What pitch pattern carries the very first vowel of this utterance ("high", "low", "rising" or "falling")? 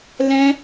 high